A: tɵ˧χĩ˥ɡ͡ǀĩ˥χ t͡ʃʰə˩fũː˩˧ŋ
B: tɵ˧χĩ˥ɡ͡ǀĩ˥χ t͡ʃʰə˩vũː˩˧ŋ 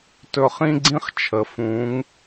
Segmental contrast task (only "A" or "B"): A